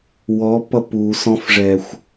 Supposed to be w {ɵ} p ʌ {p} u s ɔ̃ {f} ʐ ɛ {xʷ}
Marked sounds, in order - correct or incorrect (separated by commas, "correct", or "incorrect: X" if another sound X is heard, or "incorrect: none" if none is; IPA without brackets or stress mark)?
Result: incorrect: ɔ, correct, correct, correct